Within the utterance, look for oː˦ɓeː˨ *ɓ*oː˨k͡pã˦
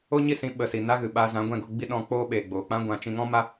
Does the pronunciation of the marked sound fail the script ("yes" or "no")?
yes